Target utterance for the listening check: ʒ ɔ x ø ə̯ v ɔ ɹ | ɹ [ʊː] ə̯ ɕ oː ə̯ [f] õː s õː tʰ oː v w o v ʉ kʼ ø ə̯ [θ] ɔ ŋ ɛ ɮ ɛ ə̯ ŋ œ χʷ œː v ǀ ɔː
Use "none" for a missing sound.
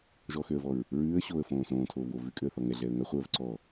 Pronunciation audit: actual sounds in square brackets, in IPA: ʉː, f, θ

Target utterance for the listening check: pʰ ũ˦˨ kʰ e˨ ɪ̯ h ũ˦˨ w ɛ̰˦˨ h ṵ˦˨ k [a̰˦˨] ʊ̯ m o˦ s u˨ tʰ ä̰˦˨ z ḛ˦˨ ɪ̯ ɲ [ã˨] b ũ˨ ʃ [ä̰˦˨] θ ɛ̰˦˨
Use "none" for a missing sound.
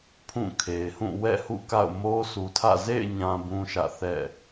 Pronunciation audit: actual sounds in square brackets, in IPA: a̰˦˨, ã˨, ä̰˦˨

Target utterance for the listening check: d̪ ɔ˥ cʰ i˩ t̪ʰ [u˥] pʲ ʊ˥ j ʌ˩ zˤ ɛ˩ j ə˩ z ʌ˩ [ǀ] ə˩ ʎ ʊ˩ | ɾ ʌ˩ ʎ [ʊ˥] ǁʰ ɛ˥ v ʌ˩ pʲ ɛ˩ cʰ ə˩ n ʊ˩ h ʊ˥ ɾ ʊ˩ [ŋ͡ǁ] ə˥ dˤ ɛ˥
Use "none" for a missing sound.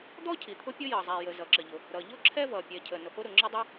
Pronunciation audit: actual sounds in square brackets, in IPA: ʊ˥, ǁ, ʊ˥, ŋ͡ǁ

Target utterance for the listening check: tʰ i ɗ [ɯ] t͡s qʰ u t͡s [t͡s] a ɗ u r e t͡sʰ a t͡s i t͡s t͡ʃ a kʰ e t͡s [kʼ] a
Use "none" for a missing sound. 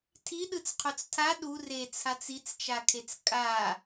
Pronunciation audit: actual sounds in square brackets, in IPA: ɯ, tʰ, kʼ

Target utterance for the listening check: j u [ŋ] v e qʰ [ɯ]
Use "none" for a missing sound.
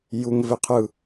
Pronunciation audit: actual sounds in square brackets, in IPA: ŋ, ɯ

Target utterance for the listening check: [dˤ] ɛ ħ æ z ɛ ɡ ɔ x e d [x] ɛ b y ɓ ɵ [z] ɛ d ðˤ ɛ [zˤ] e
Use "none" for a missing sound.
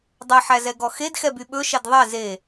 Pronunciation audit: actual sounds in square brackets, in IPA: dˤ, x, ʃ, z

